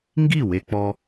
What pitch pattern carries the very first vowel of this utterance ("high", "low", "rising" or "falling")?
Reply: falling